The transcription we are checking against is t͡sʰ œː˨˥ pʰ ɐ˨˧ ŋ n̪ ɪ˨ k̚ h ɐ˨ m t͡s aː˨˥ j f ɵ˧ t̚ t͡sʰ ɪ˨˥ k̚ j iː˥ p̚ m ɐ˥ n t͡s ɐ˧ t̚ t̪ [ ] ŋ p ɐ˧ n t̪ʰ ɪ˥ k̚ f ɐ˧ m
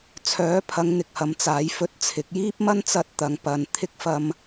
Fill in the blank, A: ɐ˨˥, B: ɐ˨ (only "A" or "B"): B